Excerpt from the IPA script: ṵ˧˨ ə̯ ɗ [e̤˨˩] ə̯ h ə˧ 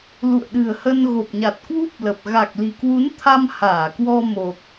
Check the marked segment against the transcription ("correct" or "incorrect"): incorrect